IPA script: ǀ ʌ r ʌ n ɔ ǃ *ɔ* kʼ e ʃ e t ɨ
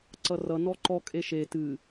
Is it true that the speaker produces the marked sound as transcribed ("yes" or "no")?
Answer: yes